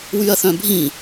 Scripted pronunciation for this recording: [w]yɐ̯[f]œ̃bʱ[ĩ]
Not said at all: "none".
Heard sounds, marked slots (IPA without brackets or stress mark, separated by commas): w, θ, ĩ